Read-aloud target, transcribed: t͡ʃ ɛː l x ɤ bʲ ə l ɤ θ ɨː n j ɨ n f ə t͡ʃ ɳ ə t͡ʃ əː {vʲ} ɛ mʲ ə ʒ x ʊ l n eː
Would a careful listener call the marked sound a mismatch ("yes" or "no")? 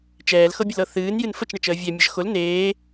no